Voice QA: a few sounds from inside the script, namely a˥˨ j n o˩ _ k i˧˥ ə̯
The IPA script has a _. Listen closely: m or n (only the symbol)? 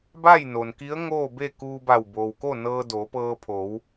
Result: n